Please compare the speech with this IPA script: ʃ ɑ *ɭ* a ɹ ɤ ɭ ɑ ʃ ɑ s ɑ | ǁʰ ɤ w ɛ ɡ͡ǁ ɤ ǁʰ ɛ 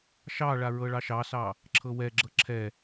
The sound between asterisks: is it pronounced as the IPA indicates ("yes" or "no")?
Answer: yes